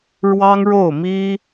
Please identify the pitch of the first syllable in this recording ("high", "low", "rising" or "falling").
high